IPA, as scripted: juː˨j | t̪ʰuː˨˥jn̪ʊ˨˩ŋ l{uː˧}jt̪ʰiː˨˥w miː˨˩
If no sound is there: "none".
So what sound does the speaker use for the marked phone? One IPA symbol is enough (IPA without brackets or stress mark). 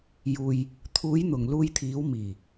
uː˧